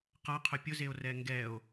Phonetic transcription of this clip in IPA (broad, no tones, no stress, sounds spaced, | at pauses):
q a qʰ ʊ pʲ ʊ z e o̯ r ɛ ŋ ɡ ɛ o̯